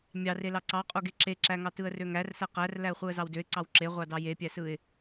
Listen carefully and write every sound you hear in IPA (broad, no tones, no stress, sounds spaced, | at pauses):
mʲ ɑ r e l ɑ ǀ ɑ qʼ o ɡ e ǁ e ǁ æ ŋ ɑ t ɯ ə̯ r ø ŋ æ r s æ q æ r l æ ə̯ χʷ ɯ ə̯ z ɑ w d ø ɪ̯ ǀ ɑ w ǁ e ʁʷ ɑ d ɑ j e pʲ æ s ɯ ɪ̯